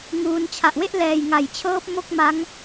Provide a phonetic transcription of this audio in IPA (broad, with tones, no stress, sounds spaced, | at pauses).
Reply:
ŋ uː˧ n t͡ɕʰ a˨˩ ʔ w e˥˩ ʔ l ɛː˨˩ j ŋ a˩˦ j t͡ɕʰ ɤː˦˥ p̚ m o˥˩ k̚ m a˦˥ ŋ